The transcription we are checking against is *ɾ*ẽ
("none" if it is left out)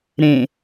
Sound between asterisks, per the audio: ɾ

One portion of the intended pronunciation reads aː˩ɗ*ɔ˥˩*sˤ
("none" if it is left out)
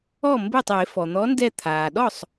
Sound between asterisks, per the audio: ɔ˥˩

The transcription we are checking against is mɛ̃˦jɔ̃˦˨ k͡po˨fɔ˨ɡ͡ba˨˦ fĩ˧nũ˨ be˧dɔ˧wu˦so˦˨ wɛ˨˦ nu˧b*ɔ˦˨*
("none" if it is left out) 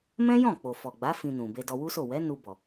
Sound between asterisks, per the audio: ɔ˨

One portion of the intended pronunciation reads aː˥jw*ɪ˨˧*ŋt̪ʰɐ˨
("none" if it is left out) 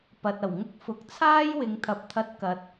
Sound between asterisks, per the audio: ɪ˨˧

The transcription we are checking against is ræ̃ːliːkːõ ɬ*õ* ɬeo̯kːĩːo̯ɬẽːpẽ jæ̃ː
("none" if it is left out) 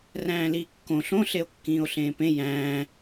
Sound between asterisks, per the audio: õ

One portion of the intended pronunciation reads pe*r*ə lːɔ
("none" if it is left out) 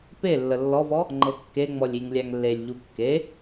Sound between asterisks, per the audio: lː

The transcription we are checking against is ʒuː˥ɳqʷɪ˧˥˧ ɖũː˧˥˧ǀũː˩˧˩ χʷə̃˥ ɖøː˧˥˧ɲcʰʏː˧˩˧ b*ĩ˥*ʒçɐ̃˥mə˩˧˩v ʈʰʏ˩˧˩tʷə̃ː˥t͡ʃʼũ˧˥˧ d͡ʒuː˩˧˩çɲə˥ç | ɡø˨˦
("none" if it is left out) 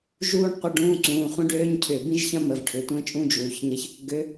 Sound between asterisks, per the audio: ĩ˥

